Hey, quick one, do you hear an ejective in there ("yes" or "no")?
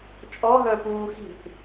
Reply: yes